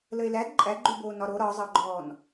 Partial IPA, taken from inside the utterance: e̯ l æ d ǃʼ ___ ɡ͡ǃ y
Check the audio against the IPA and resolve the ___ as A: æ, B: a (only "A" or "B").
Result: A